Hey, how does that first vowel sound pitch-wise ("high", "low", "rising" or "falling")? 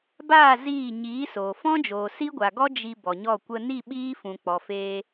falling